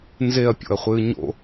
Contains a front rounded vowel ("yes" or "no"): no